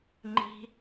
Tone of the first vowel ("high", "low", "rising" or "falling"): high